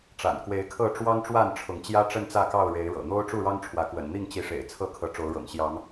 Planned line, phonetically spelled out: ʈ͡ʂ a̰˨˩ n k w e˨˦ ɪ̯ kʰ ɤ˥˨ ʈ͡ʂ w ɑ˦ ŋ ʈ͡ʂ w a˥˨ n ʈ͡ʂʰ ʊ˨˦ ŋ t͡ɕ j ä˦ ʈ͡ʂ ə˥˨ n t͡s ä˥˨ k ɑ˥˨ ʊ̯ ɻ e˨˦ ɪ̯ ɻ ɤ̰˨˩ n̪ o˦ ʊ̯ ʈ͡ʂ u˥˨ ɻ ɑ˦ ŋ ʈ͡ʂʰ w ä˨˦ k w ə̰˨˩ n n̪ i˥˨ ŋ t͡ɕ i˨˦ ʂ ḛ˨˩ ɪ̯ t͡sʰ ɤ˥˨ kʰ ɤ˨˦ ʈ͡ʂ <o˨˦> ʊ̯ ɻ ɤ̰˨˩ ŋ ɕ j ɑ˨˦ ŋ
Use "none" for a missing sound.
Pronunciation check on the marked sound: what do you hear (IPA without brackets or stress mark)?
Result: o˨˦